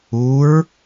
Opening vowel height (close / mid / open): close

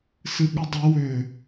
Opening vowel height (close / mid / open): close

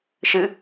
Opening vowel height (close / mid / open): close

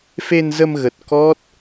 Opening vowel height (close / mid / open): mid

